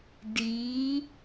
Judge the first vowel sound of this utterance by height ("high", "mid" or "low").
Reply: high